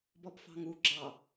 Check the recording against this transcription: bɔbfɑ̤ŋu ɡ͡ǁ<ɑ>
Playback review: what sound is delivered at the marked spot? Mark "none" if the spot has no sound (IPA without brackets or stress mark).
ɑ